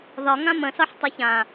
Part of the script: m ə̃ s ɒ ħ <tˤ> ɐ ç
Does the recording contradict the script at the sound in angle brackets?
no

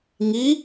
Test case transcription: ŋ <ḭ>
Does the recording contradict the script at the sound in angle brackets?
yes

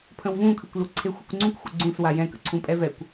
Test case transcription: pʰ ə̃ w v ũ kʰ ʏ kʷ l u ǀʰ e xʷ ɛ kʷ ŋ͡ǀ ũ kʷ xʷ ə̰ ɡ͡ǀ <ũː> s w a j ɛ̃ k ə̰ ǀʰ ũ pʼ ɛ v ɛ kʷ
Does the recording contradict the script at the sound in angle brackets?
yes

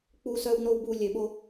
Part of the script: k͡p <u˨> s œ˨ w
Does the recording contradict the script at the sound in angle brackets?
no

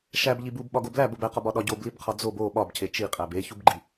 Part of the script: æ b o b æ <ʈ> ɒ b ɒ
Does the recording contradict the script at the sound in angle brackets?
yes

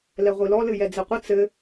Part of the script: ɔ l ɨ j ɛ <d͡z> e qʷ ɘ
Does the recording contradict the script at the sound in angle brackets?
no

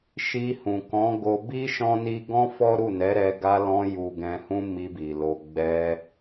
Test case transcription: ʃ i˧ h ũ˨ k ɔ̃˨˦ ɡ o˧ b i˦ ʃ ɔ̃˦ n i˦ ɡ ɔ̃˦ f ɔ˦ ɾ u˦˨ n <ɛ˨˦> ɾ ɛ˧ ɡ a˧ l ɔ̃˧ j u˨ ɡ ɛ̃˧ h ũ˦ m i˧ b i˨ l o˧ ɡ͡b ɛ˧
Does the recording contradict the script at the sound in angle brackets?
no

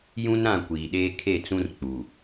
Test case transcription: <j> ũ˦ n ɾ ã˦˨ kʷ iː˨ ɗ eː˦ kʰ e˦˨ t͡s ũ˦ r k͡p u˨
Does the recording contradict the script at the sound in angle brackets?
no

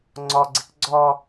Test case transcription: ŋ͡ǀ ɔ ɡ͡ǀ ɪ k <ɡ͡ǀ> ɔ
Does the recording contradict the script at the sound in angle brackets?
no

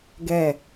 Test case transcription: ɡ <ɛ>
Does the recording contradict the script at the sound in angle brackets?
no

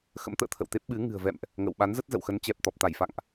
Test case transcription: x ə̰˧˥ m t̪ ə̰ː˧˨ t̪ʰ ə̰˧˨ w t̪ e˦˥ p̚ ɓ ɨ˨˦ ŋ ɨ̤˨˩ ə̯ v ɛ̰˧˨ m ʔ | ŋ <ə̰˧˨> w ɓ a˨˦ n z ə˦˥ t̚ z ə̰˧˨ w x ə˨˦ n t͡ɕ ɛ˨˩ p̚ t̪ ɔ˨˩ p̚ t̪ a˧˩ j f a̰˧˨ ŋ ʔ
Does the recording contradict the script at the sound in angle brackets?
no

